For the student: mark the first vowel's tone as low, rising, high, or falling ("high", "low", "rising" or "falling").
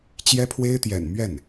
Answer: high